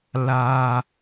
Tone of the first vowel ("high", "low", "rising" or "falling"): high